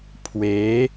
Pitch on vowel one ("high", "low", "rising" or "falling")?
rising